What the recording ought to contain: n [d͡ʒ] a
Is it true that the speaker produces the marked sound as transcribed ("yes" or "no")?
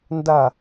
no